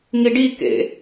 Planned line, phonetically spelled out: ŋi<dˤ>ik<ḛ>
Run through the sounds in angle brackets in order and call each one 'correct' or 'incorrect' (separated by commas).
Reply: incorrect, correct